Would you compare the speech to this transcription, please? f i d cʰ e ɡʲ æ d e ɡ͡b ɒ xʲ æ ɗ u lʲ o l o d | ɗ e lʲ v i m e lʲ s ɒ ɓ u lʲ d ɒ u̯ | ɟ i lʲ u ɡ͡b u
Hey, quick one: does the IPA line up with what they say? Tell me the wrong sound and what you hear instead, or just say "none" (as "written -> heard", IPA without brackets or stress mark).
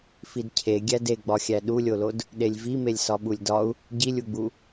none